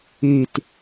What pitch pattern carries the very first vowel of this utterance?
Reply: low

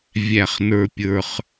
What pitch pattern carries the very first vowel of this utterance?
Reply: falling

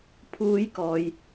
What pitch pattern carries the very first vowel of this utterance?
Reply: high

